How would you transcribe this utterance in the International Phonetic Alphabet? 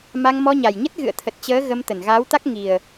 m a˧ ŋ m ɔ˧ ɲ a˨˩ j ɲ ə˦˥ t̚ ɣ ɨ̰˧˨ ə̯ t̪ʰ ə˨˩ t̚ t͡ɕ əː˨˦ ɣ ə˧ m t̪ ə˧˩ n ɣ aː˨˦ w t̪ a˦˥ k̚ ŋ i˨˩ ə̯

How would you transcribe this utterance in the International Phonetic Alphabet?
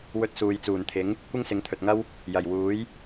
w ɵ˧ t̚ s uː˨ j t͡s uː˨˩ n t̪ʰ ɪ˨˥ ŋ | kʷ ɪ˥ ŋ s ɪ˨˥ ŋ t̪ʰ ɵ˨ t̚ ŋ ɐ˥ w | j ɐ˨˩ j w uː˨˥ j

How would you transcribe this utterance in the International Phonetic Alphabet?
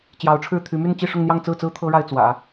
t͡ɕ j ɑ˧˥ ʊ̯ ʈ͡ʂʰ ɻ̩˥˩ t̪ʰ y˧˥ m y˥˧ n t͡ɕ i˥˧ ʂ ʊ˥˧ ŋ n̪ j ɑ˥˧ ŋ t͡s ɹ̩˥˩ t͡s ɹ̩˥ t̪ʰ ɤ˥ ɻ a˥˩ ɪ̯ t͡s w ä̰˨˩˦

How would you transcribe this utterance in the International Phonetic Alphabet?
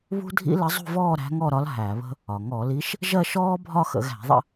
β ṳ˥ dʱ ḭ˥ l ə˧˥ zˤ ṳ˥˧ v ɔː˥˧ ɾ æ̤˧˥ ŋ ɔ˥˧ ɾ ɒ˧˥ l ɦ æ˧˩˧ β ə̤˥ | ɒ˩ ŋ ɔ˧˩˧ l i˧˥ ʃ | ʒ ɜ˥˧ ʃ ɔː˥ bʱ ɒ˥˧ x ə̰˧˩˧ ɣ æ̤˧˩˧ ðˤ ə̰˥˧

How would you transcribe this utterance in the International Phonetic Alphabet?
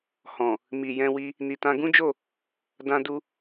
h ɔ̃˨ | m i˨ j ɛ̃˧ w i˧ | n i˨ t ã˧ ɡ ũ˦ d͡ʒ o˦˨ | d ã˧ d u˧

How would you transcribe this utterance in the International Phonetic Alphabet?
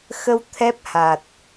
x ə˧ w t̪ʰ ɛ˦˥ p̚ h a˨˩ t̚

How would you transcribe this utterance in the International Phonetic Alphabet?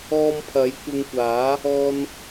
ɔː˧ m pʰ ɐ˨˥ j kʷ ɪ˧ ŋ kʷ aː˨˥ | ɔː˥ n

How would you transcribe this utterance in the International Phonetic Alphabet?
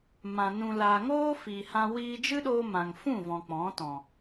m ã˨ n ũ˨ l aː˨ ŋ oː˦ f i˨ h ã˧ w iː˧ d͡ʒ ɨ˦ ɗ oː˧ m ã˨ ŋ f ũ˦˨ v ɔ̃˨ k͡p ɔ̃˨˦ t ɔ̃˨

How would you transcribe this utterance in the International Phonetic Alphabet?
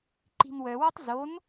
ǃ i̤ n w œ w ɔ tˤ z o n

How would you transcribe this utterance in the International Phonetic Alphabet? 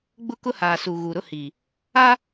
ɡ͡b ʊ˦ k ʊ˦ h aː˨ s u˨ ɣ u˨ ɾ ʊ˦ h iː˨ | aː˦

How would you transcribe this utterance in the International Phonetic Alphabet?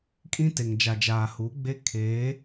kʼ ĩ˦ t e˨ ŋ d͡ʒ a˨ d͡ʒ aː˨ h u˨˦ ɡ͡b e˦ kʰ eː˨˦

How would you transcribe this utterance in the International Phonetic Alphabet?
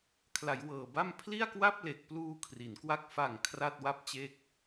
kʰ l a˩˦ j w ɤː˨˩ b a˥˩ m pʰ l i˥˩ a̯ k w a˥˩ p̚ l e˨˩ k̚ p l uː˧ kʰ r i˩˦ n k w a˥˩ k̚ f a˨˩ ŋ kʰ r a˥˩ t̚ w a˥˩ p̚ t͡ɕ e˥˩ k̚

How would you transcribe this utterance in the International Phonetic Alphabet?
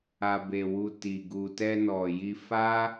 a˨ b e˨ w u˨ t i˨ ɡ u˨ t ɛ˧ n ɔ˨ j i˧ f a˦

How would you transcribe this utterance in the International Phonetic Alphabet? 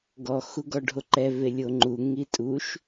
ɡ ɔ x u ɡ ɔ ɖʱ o ǃ ɛ v e lʲ o ŋ͡ǃ u ŋ i tʼ u ʃ

